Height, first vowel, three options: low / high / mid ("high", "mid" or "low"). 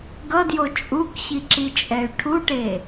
mid